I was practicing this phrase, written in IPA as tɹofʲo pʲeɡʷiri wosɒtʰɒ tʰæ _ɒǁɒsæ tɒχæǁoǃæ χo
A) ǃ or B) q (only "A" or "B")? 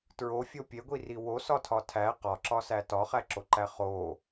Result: B